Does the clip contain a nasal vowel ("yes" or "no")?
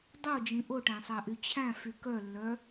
yes